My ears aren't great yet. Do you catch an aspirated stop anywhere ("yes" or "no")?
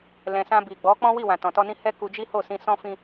no